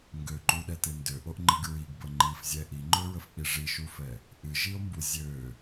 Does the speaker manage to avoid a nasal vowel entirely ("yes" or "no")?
yes